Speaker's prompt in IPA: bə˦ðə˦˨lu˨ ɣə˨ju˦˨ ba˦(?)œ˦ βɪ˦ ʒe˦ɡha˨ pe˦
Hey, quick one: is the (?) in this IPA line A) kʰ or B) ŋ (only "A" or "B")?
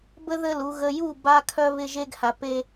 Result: A